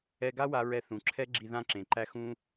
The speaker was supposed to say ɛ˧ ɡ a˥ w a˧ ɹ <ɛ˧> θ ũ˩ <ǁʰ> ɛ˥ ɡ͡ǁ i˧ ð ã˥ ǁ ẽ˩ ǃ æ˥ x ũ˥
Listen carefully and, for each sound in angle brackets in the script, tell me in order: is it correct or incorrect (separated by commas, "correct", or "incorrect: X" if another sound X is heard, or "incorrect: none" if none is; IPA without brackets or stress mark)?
correct, correct